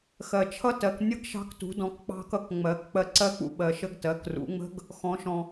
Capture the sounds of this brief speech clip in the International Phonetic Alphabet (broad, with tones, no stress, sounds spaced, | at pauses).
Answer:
x ɜ˩ t͡ʃʰ ʌ˦˥ t ɜ˩˧ k nʲ ə˦˥ ɡ ʃ ɑ̤˧ k t ṳ˩˧ d ɔ̃˩˧ k k͡p ɑ̤˧ k ʌ˧ k ŋ͡m ɜ˩˧ k k͡p ɜ˧ ǀ ɜ˦˥ k͡p ṵ˩ ɓ ɜ˩ ʃ ə˧ ɡ t ɜ˩˧ k r ṵ˩˧ ŋ͡m ə̤˦˥ ɡ | x ɔ̃˩˧ ʃ ɔ̃˩